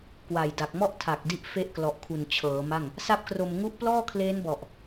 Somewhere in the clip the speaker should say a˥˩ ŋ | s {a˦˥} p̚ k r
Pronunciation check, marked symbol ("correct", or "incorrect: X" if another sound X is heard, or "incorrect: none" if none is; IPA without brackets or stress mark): incorrect: a˥˩